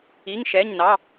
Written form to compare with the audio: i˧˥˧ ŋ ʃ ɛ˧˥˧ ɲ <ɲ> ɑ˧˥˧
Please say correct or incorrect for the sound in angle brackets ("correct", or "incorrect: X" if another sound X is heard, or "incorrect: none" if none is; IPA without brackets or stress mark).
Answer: incorrect: n